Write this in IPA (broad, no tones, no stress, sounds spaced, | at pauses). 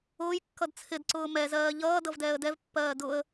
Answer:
ʊː j kː ʌ d t͡sʰ ɪ d ǀ ʊː m ɛ z ɜː ʎ ʌː d ʌ v d ɛː ə̯ d ɛ v pː ɜː d ʊ ə̯